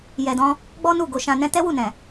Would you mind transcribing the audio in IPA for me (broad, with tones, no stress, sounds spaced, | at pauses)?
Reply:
j ɛ˨ d ɔ̃˧ | ɡ͡b ɔ˦ n u˦˨ ɡ o˧ ʃ ã˧ n ɛ̃˦ t ɛ˦ w u˦˨ n ɛ̃˨